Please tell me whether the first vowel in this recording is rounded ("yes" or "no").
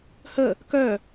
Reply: no